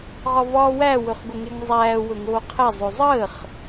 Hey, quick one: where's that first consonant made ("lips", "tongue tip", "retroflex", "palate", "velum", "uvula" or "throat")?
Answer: uvula